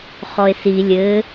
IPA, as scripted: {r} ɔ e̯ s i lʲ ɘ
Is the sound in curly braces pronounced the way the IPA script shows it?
no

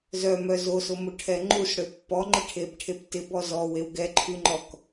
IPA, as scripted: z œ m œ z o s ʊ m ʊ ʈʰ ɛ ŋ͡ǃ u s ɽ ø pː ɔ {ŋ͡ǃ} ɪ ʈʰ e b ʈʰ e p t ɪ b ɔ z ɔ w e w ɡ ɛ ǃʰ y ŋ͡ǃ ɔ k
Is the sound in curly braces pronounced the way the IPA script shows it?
yes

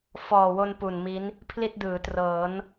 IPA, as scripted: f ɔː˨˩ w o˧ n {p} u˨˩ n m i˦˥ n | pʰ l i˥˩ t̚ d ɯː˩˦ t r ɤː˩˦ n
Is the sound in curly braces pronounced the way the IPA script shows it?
yes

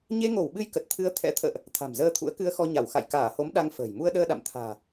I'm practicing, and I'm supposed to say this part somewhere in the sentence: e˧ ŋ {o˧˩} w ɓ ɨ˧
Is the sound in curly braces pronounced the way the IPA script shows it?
yes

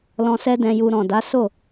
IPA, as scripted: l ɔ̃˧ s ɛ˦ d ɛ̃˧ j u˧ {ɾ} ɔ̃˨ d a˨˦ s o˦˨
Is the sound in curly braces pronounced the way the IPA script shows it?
yes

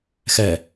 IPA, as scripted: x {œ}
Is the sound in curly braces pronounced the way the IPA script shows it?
no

